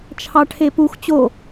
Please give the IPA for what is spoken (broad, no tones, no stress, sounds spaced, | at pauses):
t͡ʃʰ ɑ ʈʰ e p u x t͡ɕ o